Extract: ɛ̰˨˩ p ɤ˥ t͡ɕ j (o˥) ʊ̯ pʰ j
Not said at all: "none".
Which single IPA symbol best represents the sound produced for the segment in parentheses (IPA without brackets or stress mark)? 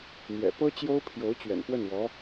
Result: o˥